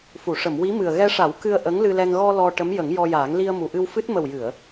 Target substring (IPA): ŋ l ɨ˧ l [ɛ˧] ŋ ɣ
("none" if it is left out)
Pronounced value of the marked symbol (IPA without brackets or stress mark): ɛ˧